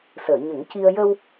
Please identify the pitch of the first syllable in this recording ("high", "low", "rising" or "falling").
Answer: low